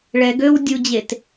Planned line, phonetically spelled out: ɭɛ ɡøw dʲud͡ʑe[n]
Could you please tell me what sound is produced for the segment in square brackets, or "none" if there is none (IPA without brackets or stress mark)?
t